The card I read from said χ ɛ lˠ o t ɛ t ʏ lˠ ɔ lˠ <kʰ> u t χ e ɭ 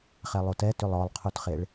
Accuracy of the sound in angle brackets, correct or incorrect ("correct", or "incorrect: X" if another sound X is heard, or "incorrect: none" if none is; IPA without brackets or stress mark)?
incorrect: qʰ